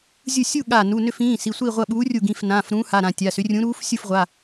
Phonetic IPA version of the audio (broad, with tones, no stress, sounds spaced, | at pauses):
zʲ u˧˩ sʲ u˥˨ ɠ a˧˩ n u˩˧˩ n ʏ˥˨ f ĩː˩˧˩ s i˩˧˩ sʷ i˥˨ ʁʷ ɐ˥˨ ɓ uː˨˥ rʲ u˧˩ ɡ ĩ˩˧˩ f n ãː˩˧˩ f ɾ ũː˨˥ h a˩˧˩ ɾ ã˧˩ tʲ a˩˧˩ s ʏ˨˥ rʲ ũ˨˥ ɾ uː˨˥ f sʲ u˥˨ f ʁʷ a˩˧˩